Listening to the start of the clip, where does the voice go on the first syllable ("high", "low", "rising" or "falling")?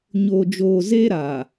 low